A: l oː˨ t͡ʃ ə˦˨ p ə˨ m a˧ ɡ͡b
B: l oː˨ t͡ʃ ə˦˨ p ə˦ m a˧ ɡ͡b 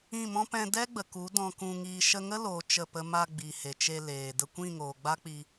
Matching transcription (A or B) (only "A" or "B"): B